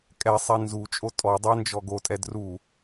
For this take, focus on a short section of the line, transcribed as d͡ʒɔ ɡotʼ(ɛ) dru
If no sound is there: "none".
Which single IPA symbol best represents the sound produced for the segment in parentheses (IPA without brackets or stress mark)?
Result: ɛ